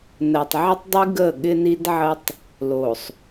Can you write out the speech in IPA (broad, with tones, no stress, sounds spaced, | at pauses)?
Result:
n ɜ˨ tˤ ʕ ə˦ tˤ dˤ i˦ ɡ ə˦˨ ɠ ɪ˦ n i˦ d ʕ ə˦ tˤ | l o˨ sˤ